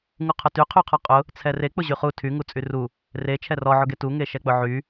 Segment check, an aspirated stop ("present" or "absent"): present